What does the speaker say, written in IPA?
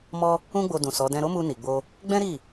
mɔ˦ | ũ˦ɡ͡bo˧ dũ˨ sɔ˨˦ dɛ̃˧ɾo˦mu˧ni˨ ɡ͡bo˧ | ɡ͡bɛ̃˦ɾi˦˨

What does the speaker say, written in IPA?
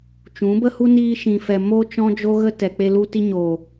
t͡ʃũ˨˦bə˦hu˦ niː˧ʃĩ˨fɛ˨ mo˦t͡ʃɔ̃˦d͡ʒo˦ ɣə˦ tɛ˨k͡pe˧lu˧ ti˧ɲo˨

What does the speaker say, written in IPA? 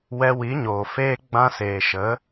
wɛ˧wi˨˦ɲoː˨ feː˧ ɡ͡bã˧seː˨ʃə˨˦

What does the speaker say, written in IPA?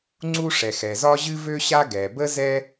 ŋ͡ǀu˥ʂɛ˩xɛ˩zɒ˥ ʑɨ˥vø˥ ɕa˥ ɡɛ˩bə˥ zɛ˥

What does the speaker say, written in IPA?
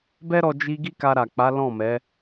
bɛ˦ɾɔ˧ d͡ʒi˧ ɡi˦ka˧ɾa˨k͡pa˨˦ lɔ̃˦˨mɛ˨˦

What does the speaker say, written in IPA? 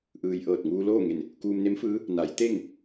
ʔɯː˩j ʔɤː˧˩t̚ŋuː˧loː˥˨ŋe˧˩n | kuː˧mne˧˥mfɯː˧˥ | na˩˧jt̪e˥˨ŋ

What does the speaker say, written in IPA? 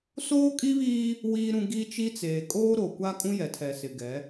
soː˦kʼi˦βiː˦ | wiː˦ɾũ˦ ɡi˦t͡ʃi˦t͡seː˨ kʼoː˦ɾo˨kʷa˦ kʼũ˦jɛ˨tʰɛ˨sɪ˨ ɡɛ˨˦

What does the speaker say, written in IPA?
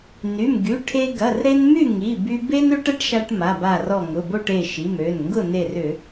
ny˩˧˩mɡy˩˧˩ʈʰe˧ ɡɐ˩˧˩rɾe˧n my˥˨ŋi˩˧˩by˧ be˥n ø˥ʈɐ˥ʈʃa˧ʈ ma˩˧˩ba˧˩rɔ˧˩ ŋʊ˩˧˩bo˥˨ʈe˧˩ ʃi˩˧˩mø˩˧˩nŋɡʊ˥˨ ne˧˩rʏ˧˩˧

